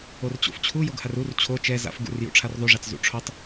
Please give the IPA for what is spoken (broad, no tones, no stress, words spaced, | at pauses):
ort͡ɕo̰ft͡ɕʰu joɡharur t͡ɕʰo t͡ʃɛ za̰f ɡṵr jṵʈ͡ʂʰarðˤuʐat͡s zṵʈ͡ʂʰotˤ